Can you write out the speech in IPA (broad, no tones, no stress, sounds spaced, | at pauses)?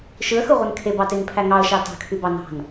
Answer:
ʃ ɯ ə̯ x ɯ ʁʷ ɯ n kʰ e b ɑ t e ŋ pʰ æ ŋ ɑ ə̯ ʃ ɑ t ɑ̤ kʰ y b ɑ n ɑ̤ n